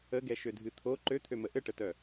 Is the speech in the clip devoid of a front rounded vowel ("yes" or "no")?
no